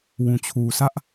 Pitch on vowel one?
low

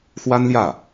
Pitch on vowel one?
high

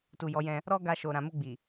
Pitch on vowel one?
low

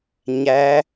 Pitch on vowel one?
rising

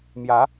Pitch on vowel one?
rising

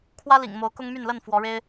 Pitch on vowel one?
high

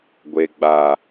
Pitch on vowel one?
low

